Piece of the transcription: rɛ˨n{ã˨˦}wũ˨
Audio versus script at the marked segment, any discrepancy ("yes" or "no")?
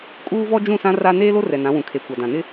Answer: no